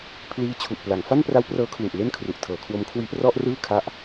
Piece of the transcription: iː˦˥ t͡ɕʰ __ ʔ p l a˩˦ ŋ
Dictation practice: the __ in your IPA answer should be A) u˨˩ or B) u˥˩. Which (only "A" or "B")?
A